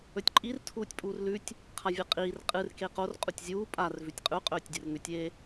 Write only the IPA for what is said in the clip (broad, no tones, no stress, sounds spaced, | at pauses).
ɵ tʲ ǃʼ i r tʰ uː tʲ pʼ uː r l ʉ tʲ | qʰ a vʲ ɨ qʼ iː r qʼ ɨ r k e q o r qʼ u tʲ zʲ uː pʼ a r v ʉ tʲ qʼ ʉ qʼ ɵː tʲ dʲ ɨ r n̪ ʉ tʲ e